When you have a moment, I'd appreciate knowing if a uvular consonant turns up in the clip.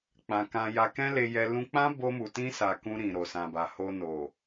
no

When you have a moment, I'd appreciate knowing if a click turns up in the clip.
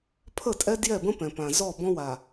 no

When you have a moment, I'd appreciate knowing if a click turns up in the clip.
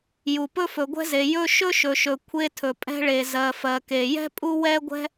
no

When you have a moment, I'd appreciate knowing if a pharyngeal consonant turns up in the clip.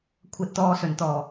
no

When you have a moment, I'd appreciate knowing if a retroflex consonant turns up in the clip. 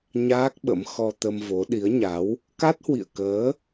no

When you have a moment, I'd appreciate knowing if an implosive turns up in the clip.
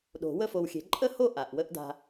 yes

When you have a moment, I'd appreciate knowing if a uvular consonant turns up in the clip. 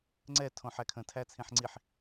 no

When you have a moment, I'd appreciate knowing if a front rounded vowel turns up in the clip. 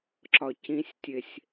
no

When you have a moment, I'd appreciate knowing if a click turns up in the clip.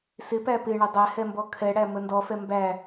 no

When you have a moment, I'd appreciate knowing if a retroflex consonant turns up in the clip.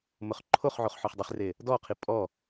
no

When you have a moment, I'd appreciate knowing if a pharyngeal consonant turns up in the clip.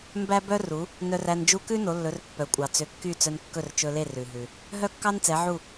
yes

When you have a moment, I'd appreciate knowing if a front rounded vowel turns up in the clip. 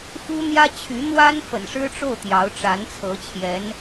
yes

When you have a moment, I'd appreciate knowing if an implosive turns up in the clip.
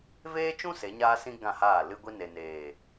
no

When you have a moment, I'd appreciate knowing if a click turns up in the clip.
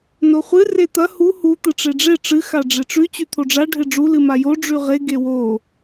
no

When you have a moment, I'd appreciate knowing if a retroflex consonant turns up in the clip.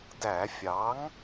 no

